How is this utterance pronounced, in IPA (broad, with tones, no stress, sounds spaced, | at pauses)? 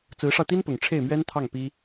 t͡s ɹ̩˧˥ ʂ ɑ˧ ʊ̯ t̪ i˥ n p ʊ˨˩ ŋ ʈ͡ʂʰ e˥˩ ɪ̯ m ɥ ɛ˥ n t̪ʰ ɑ˥˩ ŋ p i˥